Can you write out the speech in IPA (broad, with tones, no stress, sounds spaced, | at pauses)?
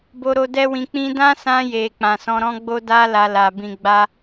b o˧ ɾ o˧ d ɛ˦ w ĩ˧ k͡p ĩ˦ d ã˦ s ã˧ j e˨ k͡p ã˨ s ɔ̃˧ ɾ ɔ̃˦ ɡ͡b o˦ d a˦ l a˧ l a˨ b ĩ˧ ɡ͡b a˦